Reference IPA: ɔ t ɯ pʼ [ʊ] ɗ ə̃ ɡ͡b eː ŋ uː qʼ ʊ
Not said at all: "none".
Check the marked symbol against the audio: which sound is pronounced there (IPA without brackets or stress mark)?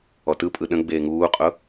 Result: ɯ